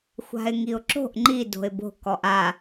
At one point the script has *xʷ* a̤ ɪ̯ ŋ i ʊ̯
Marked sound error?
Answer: no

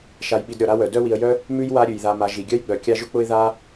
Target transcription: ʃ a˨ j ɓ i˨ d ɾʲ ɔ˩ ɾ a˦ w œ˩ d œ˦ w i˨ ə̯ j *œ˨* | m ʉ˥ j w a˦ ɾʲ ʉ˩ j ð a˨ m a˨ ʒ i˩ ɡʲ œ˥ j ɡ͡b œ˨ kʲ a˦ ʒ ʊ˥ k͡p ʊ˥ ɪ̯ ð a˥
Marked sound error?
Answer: yes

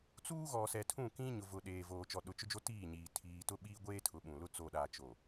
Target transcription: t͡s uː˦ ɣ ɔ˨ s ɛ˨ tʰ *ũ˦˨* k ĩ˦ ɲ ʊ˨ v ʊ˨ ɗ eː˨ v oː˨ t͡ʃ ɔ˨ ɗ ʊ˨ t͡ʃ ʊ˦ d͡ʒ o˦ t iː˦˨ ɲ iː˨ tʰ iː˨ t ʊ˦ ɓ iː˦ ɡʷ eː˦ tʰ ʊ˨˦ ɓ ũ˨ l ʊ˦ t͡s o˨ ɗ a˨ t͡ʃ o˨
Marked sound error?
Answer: no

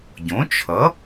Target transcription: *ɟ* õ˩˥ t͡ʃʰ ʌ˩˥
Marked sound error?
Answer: no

